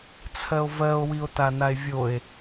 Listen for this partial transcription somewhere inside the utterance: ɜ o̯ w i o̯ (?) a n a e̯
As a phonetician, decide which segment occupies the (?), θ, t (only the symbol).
t